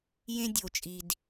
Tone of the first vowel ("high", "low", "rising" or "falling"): high